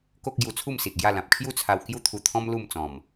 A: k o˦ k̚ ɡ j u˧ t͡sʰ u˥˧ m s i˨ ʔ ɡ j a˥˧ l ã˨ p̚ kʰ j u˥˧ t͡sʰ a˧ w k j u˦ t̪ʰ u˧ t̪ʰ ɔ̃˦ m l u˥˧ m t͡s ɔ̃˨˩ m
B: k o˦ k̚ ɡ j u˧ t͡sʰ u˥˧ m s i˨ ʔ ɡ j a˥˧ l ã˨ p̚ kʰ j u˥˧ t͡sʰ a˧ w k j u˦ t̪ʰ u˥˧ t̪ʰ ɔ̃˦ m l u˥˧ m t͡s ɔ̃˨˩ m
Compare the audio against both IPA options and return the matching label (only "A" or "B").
A